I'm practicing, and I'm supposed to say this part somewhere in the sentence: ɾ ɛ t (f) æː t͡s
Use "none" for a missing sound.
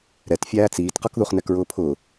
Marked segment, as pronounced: fʲ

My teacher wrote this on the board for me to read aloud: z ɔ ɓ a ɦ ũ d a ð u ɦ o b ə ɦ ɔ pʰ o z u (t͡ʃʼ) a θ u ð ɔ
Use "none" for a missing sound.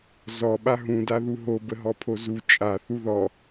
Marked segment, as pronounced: t͡ʃʼ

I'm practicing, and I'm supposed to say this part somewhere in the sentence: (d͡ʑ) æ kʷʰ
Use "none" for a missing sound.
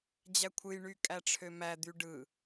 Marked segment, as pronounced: d͡ʑ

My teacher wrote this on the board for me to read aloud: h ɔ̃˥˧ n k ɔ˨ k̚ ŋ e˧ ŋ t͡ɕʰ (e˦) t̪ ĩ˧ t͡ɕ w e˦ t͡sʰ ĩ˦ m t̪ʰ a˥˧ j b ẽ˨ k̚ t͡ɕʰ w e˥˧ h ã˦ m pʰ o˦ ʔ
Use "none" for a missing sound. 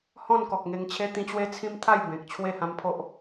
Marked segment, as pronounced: e˦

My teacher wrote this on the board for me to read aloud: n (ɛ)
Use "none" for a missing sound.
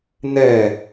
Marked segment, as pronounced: ɛ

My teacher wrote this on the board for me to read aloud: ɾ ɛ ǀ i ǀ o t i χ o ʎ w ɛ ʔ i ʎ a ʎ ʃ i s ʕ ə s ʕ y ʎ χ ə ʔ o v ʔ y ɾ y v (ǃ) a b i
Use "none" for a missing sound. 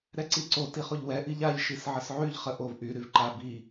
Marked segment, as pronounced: ǃ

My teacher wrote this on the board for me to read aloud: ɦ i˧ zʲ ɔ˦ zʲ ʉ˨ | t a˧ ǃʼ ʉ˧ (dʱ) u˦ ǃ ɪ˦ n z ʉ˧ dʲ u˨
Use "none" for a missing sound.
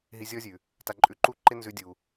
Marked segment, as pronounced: ǃ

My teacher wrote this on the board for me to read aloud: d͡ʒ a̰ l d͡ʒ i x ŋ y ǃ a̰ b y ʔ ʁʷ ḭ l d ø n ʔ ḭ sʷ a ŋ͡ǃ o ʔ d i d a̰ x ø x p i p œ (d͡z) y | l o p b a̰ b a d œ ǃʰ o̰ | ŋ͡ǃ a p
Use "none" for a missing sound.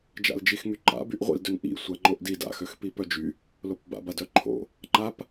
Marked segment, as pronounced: d͡ʒ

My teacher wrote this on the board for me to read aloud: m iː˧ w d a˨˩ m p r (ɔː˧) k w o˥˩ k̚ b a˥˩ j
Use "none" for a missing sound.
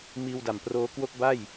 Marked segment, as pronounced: oː˧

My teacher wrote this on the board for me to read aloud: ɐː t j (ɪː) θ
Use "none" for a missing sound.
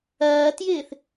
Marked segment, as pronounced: ɪː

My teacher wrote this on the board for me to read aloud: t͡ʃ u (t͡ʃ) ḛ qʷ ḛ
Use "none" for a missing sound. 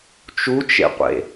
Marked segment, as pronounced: t͡ʃ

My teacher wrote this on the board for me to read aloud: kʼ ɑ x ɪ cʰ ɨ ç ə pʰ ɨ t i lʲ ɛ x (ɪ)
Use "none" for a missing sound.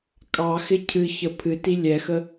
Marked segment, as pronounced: ə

